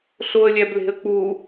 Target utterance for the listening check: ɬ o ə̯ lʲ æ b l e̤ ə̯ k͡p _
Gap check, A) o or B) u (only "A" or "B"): B